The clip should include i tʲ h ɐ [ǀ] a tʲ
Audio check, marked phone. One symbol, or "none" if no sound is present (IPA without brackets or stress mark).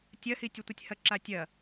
ǁ